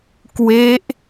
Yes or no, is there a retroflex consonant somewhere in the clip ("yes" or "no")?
no